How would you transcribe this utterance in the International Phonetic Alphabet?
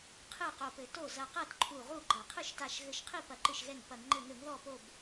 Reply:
qʰ ɨ˥˩ q o˧˩ p ɘ˧˩˧ t o˥˩ z ɐ˧˩ q ɐ˥˩ t ǃʰ u˧˩ ʁ u˥˩ ɡ͡ǃ ɐ˧˩˧ qʰ ɨ˥˩ ʃ t a˧˩ ʃ ɣ ɘ˧˩ ʃ qʰ i˥˩ p ɐ˧˩˧ ǃ ɨ˧˩ ʃ ɣ ɛ˧˩ ŋ p ɐ˧˩˧ ŋ ŋ͡ǃ ɘ˧˩ ŋ ɘ˧˩˧ ŋ ð ɔ˧˩ p o˧˩ b

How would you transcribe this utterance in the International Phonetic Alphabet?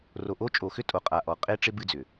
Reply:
r o˨ ʔ o˦ t͡ʃʼ o˨ x ʏ˦ tʼ o˨ qʼ a˨ ʔ ɔ˨ qʼ e˦ ʈ͡ʂ ɪ˦ b ɨ˦ d͡z ʏ˨

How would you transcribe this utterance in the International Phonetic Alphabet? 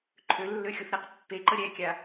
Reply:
ǃʰ ø lː ø xʲ o θ ɾ ɛ q pː e ǃ ə ɾʲ ɛ kʲ a

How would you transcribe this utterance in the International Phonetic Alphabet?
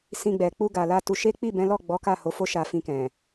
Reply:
s ĩ˧ ɡ͡b ɛ˨ k͡p u˧ ɡ a˨ l a˧ t u˧ ʃ e˦ k͡p i˦˨ b ɛ̃˨˦ l ɔ˦˨ ɡ͡b ɔ˨˦ k a˦˨ h o˨˦ f o˦ ʃ a˧ f ĩ˧ k ɛ̃˨

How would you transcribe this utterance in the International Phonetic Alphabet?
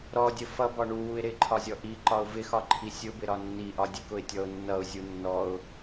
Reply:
ɾ ɔ dʲ ə f ʌ b ɒ ɳ u w u ɪ̯ ɾ ɪ ǃʰ ɒ zʲ ɔ ʔ i ǃ ɒ ʊ̯ v ɪ x ɒ ǃʰ i sʲ ʊ b ɪ ɾ ɒ nː i ʔ ɒ dʲ ə k ʊ ɪ̯ tʲ ɔ ʊ̯ nː ʌ ʊ̯ zʲ u nː ɔ ʊ̯

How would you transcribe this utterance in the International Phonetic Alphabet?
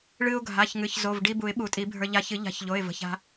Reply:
ɭ ɨ˧ ʊ̯ ɡʱ a˩˧˩ ç ŋ ɨ˩˧˩ ç z o˩˧˩ v ɖ i˧ b u˨˩˦ ɪ̯ ɓ u˨˩˦ tʼ i˨˩˦ bʱ ə˞˧ ʎ a˧ ç ɨ˨˩˦ ʎ a̤˨˩˦ ç ʎ o˩˧˩ ɪ̯ v ə̤˩˧˩ ç a̤˧

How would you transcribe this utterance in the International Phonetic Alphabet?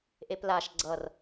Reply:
ʔ e p l a ʃ ɡ͡ǀ ʌ r

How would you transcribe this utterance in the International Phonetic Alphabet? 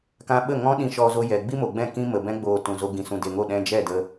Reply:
k ã˦ ɓ ə˦˨ ŋ ɔ̃˦ ɗ ĩ˧ ʃ ɔ˧ z o˧ j ɛ˨ ɡ͡b i˦ m o˨ ɡ͡b ɛ̃˦˨ k ĩ˦ m ə˨ b ɛ̃˦ ɡ͡b oː˧ t ũ˨ z o˧ ɡ ĩ˨ s ũ˨ d e˨ ŋ o˦˨ ɗ ɛ̃˧ d͡ʒ ɛ˦˨ d ə˧

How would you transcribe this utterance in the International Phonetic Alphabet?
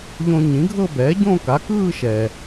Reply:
ʎ õ˧ ɲ ĩ˩˥ ɡʱ ɤ˥˧ b ɛː˩˥ ɟ õ˥˧ k a˩˥ k ɯː˥˧ ʃ ɛː˩

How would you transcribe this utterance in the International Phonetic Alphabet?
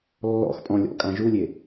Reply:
lː ɔ̰ x pʼ ɔ̃ lʲ ɔ̰ kʼ ã ʒ u lʲ e

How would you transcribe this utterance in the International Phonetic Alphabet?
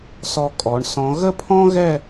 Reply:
s ɔ˧ kʼ ɔ˩˧ ɳ s ɔ̃˩˧ ɣ ə˥˧ pʰ ɔ̃˥ ɣ ɛ˥˧

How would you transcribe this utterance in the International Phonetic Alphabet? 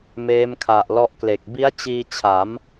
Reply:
m eː˦˥ m kʰ a˨˩ ʔ l ɔ˦˥ ʔ k l e˨˩ k̚ b i˦˥ a̯ t͡ɕ iː˧ t͡ɕʰ a˩˦ m

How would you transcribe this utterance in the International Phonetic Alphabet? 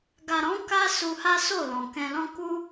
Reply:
ɡ a˨ ɾ ɔ̃˨˦ k a˦ s u˧ h a˦ s o˦˨ l ɔ̃˨ k ɛ̃˧ l ɔ̃˦ k u˦

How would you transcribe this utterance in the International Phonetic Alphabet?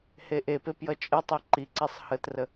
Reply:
h e ʔ e p e p j ʌ t͡ʃʼ ə tˤ e ǃ i ǀ i sˤ h ə t r ə

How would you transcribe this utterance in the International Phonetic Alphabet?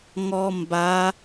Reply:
ŋ ɔ m b a

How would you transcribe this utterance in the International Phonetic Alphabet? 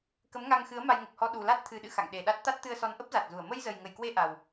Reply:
k ə˨˦ m ŋ a˧ ŋ x ɨ˨˦ ə̯ m a˧ j ŋ ə˨˩ p̚ h ɔ˧ ɗ u˨˩ l a˦˥ t̚ t̪ʰ ɨ˨˩ ɗ ɨ̰˧˨ x a̰˧˨ ŋ ɗ e˨˩ ɗ a˦˥ t̚ t̪ a˦˥ t̚ t̪ ɨ˧ ə̯ s ɔ˨˦ n ʔ ə˦˥ p̚ z a˨˩ t̚ z u˧˩ ə̯ m ə˧ j z ə˨˩ j ŋ ə˧˩ j k w e˧ ʔ a˨˩ w

